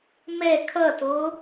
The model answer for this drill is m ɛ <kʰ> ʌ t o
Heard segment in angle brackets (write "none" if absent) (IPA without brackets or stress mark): kʰ